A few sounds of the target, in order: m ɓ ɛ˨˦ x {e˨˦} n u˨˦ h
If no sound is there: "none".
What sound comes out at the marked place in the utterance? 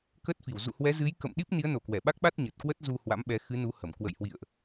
ɨ˨˦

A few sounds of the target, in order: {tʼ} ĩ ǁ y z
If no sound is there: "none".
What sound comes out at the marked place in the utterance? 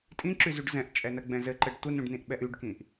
tʼ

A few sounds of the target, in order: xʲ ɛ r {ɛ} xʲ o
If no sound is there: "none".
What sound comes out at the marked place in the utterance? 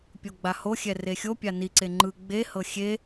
e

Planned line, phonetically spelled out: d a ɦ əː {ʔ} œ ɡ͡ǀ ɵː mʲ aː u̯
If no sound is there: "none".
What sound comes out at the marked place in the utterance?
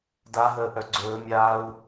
ʔ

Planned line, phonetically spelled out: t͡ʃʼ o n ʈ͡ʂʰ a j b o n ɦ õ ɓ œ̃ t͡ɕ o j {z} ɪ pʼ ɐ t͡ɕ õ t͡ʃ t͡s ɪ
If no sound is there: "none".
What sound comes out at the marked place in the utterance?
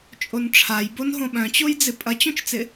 d͡z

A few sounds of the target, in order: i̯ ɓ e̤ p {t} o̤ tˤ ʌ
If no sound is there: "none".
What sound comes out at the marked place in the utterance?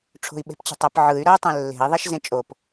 t͡ɕ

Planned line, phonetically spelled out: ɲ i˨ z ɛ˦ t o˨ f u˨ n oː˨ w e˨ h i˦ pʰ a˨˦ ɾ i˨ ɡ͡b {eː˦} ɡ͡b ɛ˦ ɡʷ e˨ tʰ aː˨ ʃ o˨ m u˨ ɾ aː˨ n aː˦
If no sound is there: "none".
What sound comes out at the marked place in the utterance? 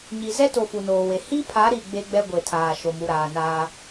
e˦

